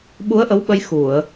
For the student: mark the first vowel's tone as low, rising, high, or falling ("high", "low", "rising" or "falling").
rising